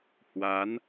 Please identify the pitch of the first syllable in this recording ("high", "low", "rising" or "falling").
rising